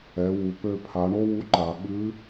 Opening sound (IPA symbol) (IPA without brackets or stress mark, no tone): ɛ